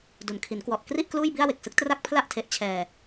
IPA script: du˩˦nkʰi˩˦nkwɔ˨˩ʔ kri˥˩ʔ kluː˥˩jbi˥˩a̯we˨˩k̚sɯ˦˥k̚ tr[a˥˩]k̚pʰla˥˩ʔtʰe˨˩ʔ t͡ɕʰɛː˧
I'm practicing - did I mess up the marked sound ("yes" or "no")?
no